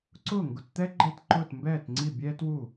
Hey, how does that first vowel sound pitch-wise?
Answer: falling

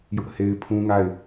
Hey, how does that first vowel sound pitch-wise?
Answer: high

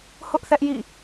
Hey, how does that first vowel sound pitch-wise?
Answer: high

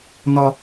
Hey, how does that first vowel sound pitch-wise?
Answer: high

